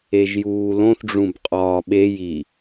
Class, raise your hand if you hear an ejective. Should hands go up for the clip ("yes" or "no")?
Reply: yes